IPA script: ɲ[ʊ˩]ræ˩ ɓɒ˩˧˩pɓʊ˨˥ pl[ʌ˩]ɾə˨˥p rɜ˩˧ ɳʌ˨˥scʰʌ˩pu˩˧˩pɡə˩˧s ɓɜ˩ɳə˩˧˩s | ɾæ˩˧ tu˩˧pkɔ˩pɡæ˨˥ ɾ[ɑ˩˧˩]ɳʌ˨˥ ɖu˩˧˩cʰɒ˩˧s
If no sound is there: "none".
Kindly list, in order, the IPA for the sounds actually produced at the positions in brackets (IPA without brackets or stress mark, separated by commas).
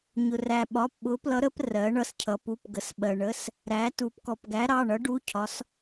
ʊ˩, ʌ˨˥, ɑ˩˧˩